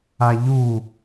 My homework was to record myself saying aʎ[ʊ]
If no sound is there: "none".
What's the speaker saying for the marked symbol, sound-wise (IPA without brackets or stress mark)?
u